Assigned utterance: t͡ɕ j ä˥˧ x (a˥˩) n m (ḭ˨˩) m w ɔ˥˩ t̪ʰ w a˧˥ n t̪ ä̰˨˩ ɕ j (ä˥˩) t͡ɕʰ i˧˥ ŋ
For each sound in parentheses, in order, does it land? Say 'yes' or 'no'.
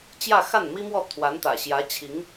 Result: yes, no, no

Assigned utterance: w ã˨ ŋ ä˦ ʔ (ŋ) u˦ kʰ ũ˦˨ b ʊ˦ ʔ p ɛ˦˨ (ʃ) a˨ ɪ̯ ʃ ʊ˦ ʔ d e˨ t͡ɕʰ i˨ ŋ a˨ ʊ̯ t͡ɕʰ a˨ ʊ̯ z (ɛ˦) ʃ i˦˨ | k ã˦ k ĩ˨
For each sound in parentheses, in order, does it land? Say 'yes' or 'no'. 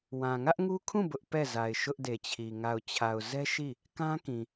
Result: yes, no, yes

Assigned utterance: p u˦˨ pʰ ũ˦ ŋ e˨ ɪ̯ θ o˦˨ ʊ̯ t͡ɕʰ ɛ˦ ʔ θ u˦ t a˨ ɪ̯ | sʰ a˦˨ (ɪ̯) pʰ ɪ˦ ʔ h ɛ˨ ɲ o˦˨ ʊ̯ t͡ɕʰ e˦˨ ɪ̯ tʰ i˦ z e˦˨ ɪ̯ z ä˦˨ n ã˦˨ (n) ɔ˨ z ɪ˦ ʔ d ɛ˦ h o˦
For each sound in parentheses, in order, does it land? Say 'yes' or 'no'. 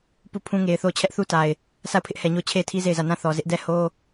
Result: no, no

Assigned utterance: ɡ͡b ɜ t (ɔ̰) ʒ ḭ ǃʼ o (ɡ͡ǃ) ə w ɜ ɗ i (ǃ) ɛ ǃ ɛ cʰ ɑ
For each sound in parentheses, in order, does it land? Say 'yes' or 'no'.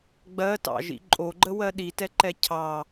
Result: no, yes, no

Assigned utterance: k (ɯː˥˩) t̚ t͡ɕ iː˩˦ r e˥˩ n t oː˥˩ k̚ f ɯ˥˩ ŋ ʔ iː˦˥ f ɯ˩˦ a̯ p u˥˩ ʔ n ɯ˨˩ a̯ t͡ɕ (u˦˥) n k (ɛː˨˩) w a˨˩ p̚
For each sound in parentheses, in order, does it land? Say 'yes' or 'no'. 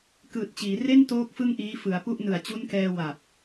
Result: no, yes, no

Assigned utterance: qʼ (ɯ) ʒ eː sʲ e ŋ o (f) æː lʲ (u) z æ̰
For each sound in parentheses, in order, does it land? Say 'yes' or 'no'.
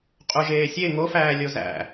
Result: no, yes, no

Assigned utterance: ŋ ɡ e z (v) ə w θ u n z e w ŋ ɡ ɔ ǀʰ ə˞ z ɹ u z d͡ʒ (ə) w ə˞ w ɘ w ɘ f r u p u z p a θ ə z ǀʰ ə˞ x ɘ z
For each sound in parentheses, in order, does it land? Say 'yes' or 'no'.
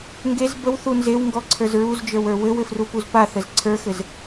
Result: no, no

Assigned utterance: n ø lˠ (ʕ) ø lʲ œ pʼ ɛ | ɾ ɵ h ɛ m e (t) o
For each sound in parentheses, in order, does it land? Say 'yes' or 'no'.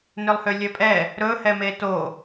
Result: no, yes

